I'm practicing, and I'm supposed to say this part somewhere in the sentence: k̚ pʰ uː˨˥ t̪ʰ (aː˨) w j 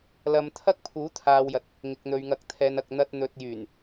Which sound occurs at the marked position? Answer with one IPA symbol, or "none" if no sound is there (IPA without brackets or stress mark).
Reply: aː˨